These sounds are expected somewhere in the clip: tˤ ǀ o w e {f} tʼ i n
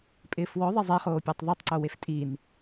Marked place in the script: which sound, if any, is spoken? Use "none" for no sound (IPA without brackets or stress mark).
f